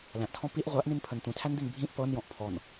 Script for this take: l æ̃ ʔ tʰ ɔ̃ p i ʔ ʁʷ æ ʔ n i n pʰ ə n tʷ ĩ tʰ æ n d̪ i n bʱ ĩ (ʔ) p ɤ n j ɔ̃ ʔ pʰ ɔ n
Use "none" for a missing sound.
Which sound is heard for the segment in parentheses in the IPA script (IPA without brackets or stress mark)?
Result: ʔ